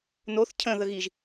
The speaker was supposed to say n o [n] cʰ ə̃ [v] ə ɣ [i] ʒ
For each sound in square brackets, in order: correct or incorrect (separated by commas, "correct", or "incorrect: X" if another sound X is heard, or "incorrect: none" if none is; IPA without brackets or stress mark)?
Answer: incorrect: θ, incorrect: ð, correct